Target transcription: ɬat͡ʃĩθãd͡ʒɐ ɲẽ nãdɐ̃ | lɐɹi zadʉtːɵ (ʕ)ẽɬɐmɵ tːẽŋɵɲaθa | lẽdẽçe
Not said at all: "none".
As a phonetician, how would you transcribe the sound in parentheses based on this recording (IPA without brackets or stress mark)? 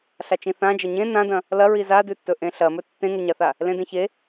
ʔ